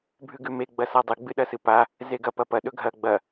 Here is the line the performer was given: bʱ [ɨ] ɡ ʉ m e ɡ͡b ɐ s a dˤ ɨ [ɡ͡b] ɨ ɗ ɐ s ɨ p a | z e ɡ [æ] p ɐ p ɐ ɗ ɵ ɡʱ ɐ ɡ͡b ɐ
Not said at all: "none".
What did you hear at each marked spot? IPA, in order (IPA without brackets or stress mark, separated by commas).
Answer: ʉ, ɡ͡b, ɐ